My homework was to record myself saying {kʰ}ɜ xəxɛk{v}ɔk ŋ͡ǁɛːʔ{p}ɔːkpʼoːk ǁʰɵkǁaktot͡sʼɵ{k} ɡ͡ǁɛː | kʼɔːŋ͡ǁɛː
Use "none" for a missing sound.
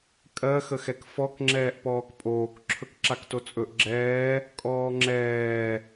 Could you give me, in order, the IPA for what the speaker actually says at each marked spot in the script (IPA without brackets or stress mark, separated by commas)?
kʼ, f, p, ʔ